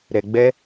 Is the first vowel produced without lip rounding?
yes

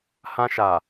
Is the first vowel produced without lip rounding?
yes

